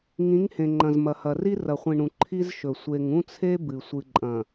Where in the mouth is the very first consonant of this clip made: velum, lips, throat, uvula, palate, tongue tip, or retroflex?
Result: velum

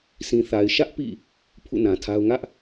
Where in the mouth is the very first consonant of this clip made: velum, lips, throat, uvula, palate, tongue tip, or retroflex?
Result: tongue tip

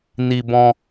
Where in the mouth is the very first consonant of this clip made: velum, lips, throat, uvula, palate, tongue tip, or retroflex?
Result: tongue tip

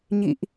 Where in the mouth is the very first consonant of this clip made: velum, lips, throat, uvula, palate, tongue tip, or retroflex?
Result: palate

